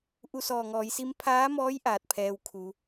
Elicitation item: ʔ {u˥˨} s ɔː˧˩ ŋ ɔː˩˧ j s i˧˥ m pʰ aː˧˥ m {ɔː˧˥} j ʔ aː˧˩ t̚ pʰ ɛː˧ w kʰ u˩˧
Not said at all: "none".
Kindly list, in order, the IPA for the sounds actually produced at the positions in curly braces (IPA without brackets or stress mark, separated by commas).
u˥˨, ɔː˧˥